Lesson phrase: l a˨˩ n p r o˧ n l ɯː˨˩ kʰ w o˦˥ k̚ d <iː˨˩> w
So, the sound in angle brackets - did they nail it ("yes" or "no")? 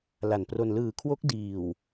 yes